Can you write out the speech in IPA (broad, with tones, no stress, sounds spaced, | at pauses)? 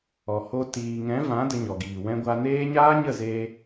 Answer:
ɔ˨ h o˧ t iː˨ ŋ ɛ̃˨˦ v ã˨˦ d ə˧ ɲ ɔ˨ ɡ iː˨ w ɛ̃˧ ɡʷ a˧ n eː˦ ɲ aː˦ ɲ ə˦˨ z eː˧